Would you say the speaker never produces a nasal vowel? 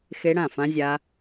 no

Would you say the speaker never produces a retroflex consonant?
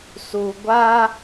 yes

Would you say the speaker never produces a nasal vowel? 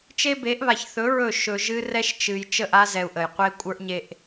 yes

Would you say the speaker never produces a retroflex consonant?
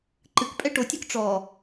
no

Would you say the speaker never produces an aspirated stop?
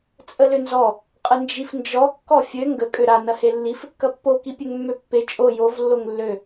yes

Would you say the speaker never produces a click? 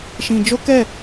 yes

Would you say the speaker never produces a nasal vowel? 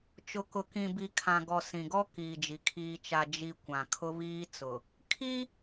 no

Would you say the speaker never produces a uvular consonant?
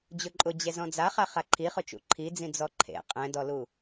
no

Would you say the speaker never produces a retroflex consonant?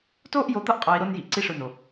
no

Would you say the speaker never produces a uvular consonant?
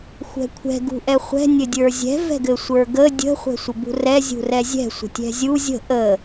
no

